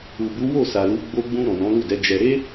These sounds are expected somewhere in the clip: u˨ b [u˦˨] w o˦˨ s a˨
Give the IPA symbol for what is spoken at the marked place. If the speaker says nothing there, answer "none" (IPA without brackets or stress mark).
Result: u˨˦